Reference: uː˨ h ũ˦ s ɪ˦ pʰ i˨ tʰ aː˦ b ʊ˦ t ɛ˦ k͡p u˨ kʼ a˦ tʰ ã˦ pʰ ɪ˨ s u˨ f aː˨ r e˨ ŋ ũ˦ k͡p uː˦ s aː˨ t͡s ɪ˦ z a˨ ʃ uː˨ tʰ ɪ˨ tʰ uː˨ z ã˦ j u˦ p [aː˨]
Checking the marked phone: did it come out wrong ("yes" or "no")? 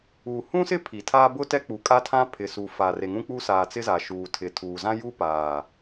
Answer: no